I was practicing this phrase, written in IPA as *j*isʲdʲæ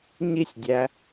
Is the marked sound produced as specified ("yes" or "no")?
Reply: no